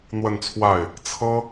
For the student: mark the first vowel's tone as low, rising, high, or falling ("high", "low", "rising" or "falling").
falling